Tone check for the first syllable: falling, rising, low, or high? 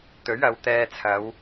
rising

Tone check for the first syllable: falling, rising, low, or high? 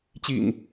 low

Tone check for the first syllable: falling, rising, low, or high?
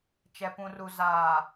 low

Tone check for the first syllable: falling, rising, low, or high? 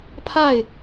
falling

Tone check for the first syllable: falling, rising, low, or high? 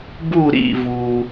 falling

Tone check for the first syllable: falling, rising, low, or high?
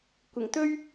low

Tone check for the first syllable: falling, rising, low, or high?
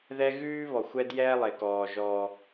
high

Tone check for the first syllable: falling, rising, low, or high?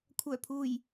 low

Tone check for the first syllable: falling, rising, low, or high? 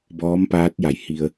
rising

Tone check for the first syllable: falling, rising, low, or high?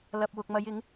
low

